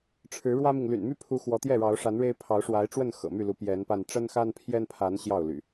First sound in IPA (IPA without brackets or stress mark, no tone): ʈ͡ʂʰ